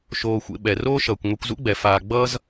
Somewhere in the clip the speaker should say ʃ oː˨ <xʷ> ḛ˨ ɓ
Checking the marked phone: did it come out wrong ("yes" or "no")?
no